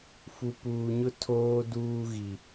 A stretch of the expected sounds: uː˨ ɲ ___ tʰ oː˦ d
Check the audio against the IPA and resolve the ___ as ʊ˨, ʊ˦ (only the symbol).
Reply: ʊ˦